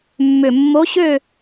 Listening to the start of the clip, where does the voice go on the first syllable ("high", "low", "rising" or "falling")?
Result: low